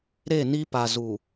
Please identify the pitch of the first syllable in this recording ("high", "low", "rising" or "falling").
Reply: falling